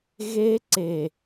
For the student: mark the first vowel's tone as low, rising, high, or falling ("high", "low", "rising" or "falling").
high